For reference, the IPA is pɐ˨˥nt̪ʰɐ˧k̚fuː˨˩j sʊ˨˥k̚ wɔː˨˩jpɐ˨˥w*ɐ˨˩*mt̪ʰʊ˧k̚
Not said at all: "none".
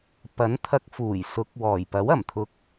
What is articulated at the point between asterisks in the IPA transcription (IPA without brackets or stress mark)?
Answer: ɐ˨˩